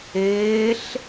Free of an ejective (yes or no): yes